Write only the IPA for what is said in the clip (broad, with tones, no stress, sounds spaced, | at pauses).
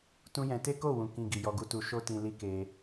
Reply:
t ũ˦ j ɛ̃˧ t e˦ k o˦˨ w ũ˨ k ĩ˧ ɡ i˨ j ɔ˧ ɡ u˦ t u˧ ʃ o˦ t ĩ˧ l i˦ k e˧